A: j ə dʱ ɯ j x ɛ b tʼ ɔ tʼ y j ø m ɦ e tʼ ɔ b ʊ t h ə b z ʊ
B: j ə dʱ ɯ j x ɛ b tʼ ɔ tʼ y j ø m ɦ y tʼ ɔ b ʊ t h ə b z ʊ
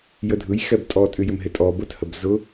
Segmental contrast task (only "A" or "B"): A